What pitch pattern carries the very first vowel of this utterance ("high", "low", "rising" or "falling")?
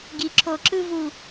low